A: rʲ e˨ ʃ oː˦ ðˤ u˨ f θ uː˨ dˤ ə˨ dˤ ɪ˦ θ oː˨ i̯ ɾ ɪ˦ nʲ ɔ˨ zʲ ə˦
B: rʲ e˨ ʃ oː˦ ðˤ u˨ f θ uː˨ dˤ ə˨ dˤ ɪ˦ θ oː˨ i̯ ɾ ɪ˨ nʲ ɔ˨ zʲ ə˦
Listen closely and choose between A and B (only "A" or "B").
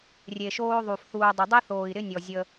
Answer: A